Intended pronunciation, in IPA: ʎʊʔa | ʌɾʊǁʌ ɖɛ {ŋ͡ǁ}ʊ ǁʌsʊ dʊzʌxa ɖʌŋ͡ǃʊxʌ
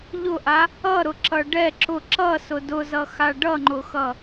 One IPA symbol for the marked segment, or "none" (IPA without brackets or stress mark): ǁ